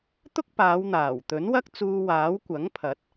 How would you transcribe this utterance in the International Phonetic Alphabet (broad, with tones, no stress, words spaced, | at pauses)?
t̪ʊ˥k̚paː˨˧wn̪aː˨˩w t̪ɵ˨˥nwɐ˥k̚t͡suː˧ waː˨˥w kʷɐ˨˥ŋpʰɐ˨˥t̚